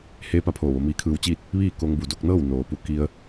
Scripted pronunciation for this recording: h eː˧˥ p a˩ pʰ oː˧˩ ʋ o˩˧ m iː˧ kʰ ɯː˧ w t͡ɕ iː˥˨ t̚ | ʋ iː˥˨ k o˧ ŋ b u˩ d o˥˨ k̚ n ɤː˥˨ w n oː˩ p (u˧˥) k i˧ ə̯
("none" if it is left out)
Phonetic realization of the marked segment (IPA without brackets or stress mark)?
u˧